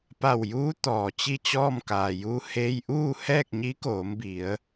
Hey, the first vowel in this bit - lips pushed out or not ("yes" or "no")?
no